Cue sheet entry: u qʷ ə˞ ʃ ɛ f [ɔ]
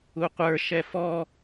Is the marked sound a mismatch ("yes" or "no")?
no